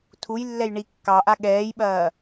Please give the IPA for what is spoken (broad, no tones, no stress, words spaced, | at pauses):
tʰujlːɛj ɳi kːɑʔa ɠɛːjɓɐː